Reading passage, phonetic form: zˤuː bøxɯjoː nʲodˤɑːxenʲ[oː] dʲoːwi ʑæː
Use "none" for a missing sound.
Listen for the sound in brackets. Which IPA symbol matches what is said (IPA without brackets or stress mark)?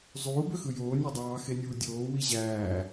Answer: uː